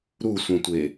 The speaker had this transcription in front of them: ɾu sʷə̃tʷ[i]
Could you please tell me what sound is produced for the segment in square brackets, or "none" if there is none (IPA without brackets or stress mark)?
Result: e